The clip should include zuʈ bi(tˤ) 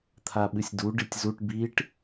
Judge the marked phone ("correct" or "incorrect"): incorrect